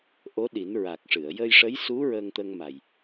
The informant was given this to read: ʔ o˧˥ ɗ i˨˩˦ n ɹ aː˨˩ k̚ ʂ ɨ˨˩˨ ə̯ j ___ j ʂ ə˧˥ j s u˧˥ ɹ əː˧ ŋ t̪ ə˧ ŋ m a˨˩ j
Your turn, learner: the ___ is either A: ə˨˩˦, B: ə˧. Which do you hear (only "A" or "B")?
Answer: B